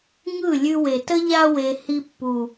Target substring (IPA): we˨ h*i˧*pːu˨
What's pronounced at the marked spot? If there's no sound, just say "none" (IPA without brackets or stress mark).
i˧